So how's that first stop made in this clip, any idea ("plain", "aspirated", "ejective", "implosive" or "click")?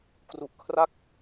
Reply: plain